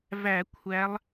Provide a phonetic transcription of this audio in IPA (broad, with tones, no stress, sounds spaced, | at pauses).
v æ˧˩˧ kʷʰ æ˨˦ lˠ